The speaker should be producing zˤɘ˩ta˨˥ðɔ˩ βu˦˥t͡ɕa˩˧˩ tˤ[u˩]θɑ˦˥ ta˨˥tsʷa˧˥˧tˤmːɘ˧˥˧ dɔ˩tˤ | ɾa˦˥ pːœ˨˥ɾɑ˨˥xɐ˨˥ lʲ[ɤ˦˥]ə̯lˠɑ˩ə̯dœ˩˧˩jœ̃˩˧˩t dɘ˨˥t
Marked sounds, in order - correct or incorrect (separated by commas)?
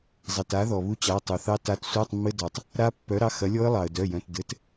correct, incorrect